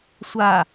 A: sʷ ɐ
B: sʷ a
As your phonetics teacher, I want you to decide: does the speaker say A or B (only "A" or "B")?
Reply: B